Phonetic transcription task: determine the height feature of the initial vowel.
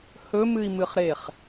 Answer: mid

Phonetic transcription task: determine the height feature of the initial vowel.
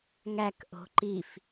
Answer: low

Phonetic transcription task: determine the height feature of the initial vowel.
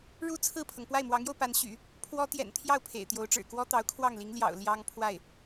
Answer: high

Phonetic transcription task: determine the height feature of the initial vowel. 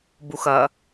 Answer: high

